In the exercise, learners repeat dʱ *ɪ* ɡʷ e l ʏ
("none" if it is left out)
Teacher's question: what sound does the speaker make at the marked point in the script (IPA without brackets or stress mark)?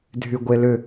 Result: y